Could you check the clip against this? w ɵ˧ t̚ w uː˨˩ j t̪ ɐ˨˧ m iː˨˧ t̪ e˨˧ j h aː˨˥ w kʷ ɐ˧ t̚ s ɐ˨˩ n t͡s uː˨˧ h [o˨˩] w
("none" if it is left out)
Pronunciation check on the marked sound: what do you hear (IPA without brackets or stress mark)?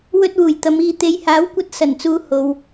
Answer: o˨